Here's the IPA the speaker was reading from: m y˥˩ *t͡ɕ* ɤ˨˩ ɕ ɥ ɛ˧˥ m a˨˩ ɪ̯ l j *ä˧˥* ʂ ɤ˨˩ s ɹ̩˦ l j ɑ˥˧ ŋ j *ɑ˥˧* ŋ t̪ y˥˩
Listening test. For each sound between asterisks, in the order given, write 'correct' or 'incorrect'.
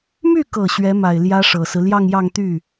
incorrect, incorrect, correct

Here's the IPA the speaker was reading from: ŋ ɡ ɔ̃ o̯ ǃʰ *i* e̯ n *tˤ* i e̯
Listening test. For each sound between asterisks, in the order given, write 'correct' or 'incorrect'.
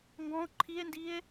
correct, incorrect

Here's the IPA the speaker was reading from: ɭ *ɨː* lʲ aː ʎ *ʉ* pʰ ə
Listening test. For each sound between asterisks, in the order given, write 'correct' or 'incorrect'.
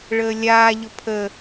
incorrect, incorrect

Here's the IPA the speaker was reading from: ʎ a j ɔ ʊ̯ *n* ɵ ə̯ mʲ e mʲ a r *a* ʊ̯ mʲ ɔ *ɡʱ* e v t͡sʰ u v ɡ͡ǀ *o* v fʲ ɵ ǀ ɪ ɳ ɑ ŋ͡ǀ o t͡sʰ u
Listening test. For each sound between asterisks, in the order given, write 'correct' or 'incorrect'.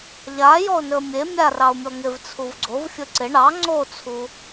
correct, incorrect, incorrect, correct

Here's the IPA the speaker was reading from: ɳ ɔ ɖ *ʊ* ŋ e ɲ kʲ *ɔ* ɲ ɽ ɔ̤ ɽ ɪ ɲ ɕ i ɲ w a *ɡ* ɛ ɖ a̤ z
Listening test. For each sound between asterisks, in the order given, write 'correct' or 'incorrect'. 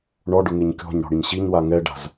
correct, incorrect, incorrect

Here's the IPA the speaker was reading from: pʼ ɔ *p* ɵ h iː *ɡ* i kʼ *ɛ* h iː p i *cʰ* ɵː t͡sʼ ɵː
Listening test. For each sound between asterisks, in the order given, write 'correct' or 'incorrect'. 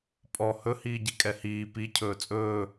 incorrect, incorrect, correct, correct

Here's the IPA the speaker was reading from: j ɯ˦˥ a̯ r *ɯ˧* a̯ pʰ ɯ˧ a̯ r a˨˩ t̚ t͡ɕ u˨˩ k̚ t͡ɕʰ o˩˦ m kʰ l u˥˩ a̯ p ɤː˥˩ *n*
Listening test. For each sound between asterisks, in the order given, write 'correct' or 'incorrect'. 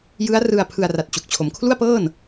correct, correct

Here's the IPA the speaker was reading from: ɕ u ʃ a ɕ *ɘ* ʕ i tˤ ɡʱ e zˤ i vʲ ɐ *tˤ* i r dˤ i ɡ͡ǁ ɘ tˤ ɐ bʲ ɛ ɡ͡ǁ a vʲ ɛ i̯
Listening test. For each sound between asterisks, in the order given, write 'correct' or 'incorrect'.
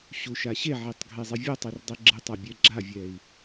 incorrect, correct

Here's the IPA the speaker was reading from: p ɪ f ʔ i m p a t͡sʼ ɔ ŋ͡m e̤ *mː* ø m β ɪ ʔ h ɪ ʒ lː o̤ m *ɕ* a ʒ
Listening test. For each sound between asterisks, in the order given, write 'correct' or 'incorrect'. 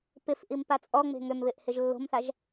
incorrect, incorrect

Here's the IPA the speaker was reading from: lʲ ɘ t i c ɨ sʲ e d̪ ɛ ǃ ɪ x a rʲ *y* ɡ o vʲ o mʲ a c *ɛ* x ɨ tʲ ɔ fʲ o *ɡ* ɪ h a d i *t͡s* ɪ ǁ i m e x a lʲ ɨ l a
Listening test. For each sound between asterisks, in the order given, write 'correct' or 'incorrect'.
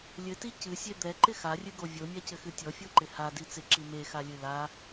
incorrect, incorrect, incorrect, correct

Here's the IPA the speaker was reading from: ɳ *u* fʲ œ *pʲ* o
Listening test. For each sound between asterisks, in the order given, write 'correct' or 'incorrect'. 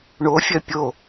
incorrect, correct

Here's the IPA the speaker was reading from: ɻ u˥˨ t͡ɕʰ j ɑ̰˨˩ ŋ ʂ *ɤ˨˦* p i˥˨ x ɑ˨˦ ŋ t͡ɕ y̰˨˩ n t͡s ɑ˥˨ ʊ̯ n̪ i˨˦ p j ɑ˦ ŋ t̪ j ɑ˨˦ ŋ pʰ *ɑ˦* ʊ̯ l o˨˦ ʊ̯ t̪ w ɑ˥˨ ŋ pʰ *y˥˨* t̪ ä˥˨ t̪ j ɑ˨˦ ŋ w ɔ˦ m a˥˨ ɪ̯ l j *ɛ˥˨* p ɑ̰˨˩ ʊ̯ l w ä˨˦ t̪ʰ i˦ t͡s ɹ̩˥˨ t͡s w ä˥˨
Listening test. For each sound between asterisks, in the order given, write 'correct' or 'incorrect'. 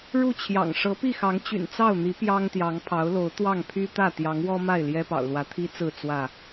correct, incorrect, incorrect, incorrect

